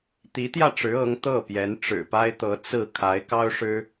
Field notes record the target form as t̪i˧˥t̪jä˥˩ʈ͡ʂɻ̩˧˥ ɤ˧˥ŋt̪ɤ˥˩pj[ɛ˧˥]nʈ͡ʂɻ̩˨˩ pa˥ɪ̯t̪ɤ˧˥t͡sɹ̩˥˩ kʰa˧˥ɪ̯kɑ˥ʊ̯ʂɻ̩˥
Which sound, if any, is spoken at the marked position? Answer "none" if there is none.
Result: ɛ˧˥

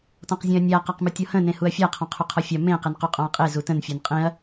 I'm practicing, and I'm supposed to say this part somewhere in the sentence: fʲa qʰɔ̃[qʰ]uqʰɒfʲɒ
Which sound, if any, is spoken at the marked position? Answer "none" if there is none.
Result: qʰ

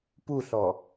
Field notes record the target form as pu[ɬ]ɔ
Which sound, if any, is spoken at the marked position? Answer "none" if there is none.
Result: ɬ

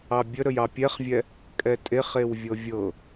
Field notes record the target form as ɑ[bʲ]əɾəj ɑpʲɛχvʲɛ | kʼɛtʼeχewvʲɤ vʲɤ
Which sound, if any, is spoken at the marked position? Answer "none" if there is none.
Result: bʲ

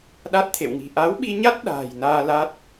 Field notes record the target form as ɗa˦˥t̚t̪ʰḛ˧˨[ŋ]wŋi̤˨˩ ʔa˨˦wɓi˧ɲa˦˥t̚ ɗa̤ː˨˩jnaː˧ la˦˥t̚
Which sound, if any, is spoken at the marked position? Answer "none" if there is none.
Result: none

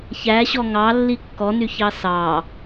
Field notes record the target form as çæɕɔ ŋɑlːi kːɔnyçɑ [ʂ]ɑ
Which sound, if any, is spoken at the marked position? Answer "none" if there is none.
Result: s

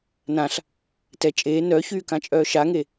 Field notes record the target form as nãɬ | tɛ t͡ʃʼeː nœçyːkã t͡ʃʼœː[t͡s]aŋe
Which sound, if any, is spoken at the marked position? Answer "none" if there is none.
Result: ʃ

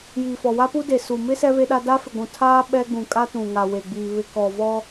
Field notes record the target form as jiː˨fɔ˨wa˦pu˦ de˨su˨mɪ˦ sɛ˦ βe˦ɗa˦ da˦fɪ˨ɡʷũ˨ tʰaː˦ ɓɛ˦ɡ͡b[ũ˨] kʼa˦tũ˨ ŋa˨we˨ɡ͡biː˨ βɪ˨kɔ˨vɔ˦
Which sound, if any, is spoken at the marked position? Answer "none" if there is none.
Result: ũ˨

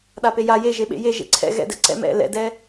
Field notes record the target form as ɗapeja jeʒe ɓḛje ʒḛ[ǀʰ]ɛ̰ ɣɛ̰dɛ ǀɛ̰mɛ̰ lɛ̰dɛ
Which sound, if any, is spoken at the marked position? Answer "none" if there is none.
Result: ǀʰ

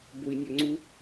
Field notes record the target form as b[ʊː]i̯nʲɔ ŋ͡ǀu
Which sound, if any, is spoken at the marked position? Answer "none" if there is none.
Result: ʊ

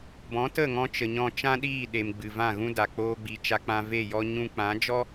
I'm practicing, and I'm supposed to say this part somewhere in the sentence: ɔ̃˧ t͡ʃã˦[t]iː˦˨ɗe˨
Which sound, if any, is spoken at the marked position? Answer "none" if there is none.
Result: ɗ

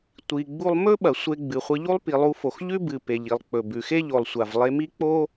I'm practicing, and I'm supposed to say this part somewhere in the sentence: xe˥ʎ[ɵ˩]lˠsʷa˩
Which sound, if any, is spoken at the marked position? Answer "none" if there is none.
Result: o˩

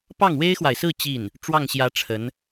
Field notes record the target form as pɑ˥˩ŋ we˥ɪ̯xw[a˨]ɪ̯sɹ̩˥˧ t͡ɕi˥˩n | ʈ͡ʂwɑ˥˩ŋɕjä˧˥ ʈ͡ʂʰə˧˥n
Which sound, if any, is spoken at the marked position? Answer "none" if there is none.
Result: a˨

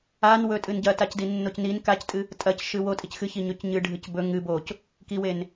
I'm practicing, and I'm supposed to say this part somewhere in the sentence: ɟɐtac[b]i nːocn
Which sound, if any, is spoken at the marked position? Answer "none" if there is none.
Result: d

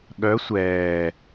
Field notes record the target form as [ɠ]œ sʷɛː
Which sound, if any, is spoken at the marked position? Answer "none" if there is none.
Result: ɠ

